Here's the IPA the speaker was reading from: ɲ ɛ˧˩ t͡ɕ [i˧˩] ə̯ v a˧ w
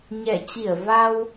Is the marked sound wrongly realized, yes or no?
no